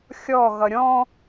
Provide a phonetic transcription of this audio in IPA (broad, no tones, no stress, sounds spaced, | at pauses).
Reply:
xʲ ɔ ɣ ʌ ɾʲ ɔ̃